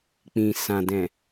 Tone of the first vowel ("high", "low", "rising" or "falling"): low